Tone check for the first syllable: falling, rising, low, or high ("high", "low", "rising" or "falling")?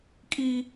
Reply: high